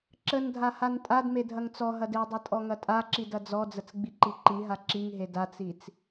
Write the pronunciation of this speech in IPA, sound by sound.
ǁ ə n dʱ a h a n tʼ a d m e dʱ ɐ ŋ t͡s ɔ ɦ ɐ d e dˤ ɐ tʼ ɔ ŋ ɐ tʼ a ǁ i d ɐ d͡z ɔ d͡z ə t͡s ɡ͡b i ǃ i ǃ i ɦ a ǁ i ŋ ɦ e d a t͡s i t͡s

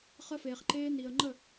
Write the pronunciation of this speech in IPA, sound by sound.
χ ə˧ f eː˨ χ ǃ eː˧ n i˨ ə̯ ŋ͡ǃ ə˦˨

